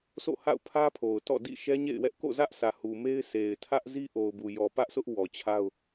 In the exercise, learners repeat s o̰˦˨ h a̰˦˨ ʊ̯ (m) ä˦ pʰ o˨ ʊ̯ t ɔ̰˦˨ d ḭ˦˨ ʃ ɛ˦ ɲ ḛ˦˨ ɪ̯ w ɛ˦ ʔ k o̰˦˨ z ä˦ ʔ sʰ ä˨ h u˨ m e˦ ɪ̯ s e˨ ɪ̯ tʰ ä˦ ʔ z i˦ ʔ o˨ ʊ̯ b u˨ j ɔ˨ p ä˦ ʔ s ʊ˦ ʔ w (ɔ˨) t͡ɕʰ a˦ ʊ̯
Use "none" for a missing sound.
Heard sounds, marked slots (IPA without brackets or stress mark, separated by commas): pʰ, ɔ˨